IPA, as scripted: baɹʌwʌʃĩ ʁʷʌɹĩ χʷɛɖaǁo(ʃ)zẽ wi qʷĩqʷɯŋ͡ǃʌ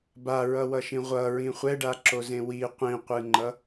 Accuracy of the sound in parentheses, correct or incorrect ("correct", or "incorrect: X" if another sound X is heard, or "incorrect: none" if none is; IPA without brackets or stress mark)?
incorrect: none